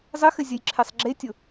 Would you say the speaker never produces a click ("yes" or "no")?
no